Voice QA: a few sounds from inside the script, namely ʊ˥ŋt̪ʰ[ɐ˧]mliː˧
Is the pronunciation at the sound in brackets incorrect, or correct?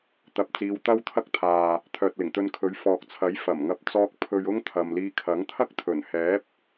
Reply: incorrect